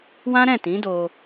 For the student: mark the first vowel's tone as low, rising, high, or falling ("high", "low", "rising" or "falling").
high